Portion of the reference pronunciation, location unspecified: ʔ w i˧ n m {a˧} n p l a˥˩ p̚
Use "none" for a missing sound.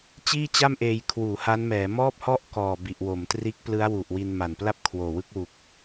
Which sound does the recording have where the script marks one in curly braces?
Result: a˨˩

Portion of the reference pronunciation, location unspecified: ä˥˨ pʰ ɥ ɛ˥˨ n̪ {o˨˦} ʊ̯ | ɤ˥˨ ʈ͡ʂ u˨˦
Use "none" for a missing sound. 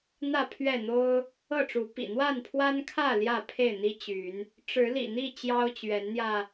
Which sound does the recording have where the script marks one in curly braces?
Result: o˦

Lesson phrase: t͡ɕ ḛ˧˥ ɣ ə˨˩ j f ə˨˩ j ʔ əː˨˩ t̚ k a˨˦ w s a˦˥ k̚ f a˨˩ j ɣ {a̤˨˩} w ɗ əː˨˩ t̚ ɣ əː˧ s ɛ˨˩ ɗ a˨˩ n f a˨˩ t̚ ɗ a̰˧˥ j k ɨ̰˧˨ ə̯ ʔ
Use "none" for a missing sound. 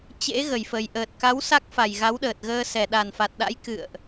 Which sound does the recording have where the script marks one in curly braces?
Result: a˨˦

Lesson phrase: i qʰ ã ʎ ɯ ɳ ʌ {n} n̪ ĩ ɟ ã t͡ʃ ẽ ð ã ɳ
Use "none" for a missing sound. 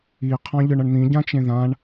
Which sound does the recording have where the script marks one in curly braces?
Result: ɳ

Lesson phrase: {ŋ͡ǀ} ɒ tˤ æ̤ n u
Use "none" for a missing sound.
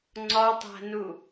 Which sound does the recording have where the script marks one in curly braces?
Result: ŋ͡ǀ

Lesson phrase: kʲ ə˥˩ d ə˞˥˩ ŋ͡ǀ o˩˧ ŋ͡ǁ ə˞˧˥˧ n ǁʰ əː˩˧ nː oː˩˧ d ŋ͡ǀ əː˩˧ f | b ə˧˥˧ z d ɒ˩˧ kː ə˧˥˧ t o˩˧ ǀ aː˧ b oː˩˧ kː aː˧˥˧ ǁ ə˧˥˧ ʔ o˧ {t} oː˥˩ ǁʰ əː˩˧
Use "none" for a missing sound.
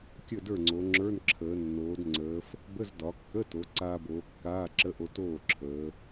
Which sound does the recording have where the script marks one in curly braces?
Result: t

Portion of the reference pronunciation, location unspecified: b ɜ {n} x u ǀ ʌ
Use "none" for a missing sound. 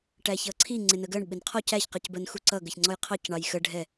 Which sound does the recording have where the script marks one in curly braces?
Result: n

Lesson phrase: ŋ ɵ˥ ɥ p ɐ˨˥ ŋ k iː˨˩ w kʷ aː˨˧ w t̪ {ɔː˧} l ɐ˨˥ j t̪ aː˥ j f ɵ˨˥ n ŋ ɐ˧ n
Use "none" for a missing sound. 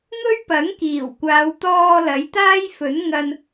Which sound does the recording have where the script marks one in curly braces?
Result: ɔː˧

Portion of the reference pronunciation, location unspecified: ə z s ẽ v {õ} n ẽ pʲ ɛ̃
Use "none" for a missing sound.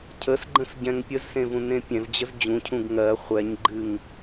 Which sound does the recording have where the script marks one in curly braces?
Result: ũ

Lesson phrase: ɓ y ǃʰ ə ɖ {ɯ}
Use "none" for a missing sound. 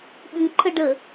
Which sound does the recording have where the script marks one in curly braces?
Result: ə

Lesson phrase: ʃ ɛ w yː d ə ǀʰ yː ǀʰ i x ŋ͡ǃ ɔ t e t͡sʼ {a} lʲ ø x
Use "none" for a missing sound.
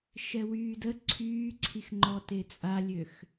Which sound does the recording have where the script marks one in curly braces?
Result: a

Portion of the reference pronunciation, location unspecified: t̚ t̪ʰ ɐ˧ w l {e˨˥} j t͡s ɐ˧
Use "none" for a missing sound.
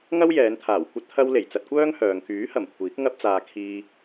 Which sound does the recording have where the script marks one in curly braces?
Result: e˨˩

